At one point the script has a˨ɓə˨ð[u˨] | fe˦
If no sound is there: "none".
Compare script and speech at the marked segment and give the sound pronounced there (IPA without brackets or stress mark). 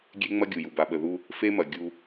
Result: u˦